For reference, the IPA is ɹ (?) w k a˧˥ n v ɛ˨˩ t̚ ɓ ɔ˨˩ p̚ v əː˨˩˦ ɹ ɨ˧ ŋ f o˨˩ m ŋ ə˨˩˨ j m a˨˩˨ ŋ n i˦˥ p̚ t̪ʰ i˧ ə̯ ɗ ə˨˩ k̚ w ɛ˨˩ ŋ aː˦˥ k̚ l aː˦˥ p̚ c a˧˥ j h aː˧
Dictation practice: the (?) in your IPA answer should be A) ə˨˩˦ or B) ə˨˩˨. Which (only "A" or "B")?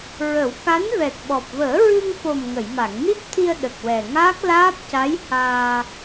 A